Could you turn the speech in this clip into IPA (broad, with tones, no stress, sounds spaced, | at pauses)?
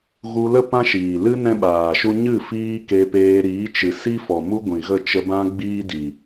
ɣ u˧ l ə˦ p ã˦ ʃ iː˨ l ɨ˦ n ɛ̃˦ ɓ aː˨ ʃ u˦ ɲ ɨ˦˨ f iː˦ k e˧ p eː˧ ɾ iː˨˦ t͡ʃ ɨ˨ s i˦ f ɔ˨ m u˦ ɡʷ ĩ˨ ɣ ə˦˨ t͡ʃ ə˧ b ã˦ ɡ͡b iː˦ d i˨